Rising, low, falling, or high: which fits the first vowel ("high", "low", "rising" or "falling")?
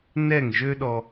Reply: falling